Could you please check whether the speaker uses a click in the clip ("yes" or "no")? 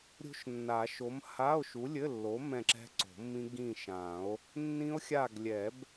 yes